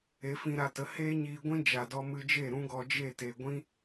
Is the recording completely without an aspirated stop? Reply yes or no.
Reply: yes